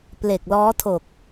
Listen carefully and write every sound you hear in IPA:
p l e˨˩ k̚ l ɔː˦˥ tʰ o˨˩ k̚

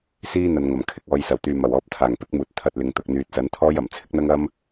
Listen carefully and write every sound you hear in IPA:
s iː˥ n̪ ɐ˨ n ŋ ɐ˨˩ m kʰ ɪ˧ k̚ ɔː˨˧ j s ɐ˨˩ w t̪ yː˨ m ɐ˨˩ w ɔː˨˥ p̚ t̪ʰ aː˨˩ ŋ p ɪ˥ k̚ m uː˨ t̚ t̪ʰ ɐ˧ t̚ l ɪ˨ ŋ t̪ ʊ˨ k̚ n̪ yː˨ t̚ s ɐ˨˥ n t̪ʰ ɔː˥ j ɐ˨˩ m t͡sʰ ɪ˥ k̚ n̪ ɐ˥ ŋ ɐ˥ m

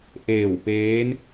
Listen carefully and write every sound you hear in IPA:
ʔ eː˧˩ w p eː˧˥ n

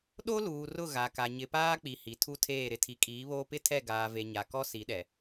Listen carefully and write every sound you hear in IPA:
ɗ o˦ l uː˨ r ʊ˦˨ ɣ a˨ k a˨ ɲ ɪ˨ p aː˦ k͡p i˨ h i˨ tʰ u˦ tʰ eː˦˨ ɾ ɪ˦ tʰ i˨˦ kʼ iː˨˦ β oː˦ p ɪ˦ tʰ ɛ˦˨ ɡ aː˨ v e˨ ɲ a˨ k ɔ˦ s i˨˦ ɗ ɛ˨

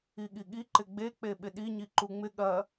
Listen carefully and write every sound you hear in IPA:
i ɠ i ɠ i ǃ ɪ ɡ͡b e k͡p e ɓ ɪ ɗ i ɲ i ǃ u ŋ͡m ɪ ɠ ɐ

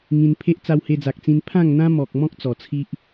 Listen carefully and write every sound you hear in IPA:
ŋ ĩ˧ n pʰ e˦ ʔ t͡s a˧ w h e˧ d͡z a˨ k̚ t͡s ĩ˧ n pʰ ã˥˧ ŋ n̪ ã˦ m ɔ˨ k̚ m ɔ̃˦ k̚ t͡s ɔ˨˩ t͡sʰ i˦ ʔ

